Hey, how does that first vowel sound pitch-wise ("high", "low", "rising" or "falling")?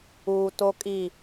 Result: low